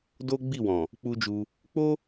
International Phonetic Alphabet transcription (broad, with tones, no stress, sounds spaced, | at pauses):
d o˦ ɡ͡b i˦˨ w ɔ̃˨ | k͡p u˦ d͡ʒ u˧ | k͡p o˦